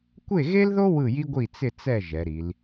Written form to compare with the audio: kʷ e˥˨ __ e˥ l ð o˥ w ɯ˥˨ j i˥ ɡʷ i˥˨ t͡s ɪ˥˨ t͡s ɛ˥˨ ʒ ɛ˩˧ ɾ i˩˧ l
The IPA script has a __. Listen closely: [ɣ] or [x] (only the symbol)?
ɣ